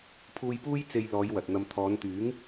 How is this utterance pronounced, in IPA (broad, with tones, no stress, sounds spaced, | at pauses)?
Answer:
pʰ uː˧ j p uː˥ j t͡s e˧ j l ɔː˨˧ j w ɐ˨ t̚ n̪ ɐ˧ m t̪ʰ ɔː˨˧ n t̪ yː˨˥ ŋ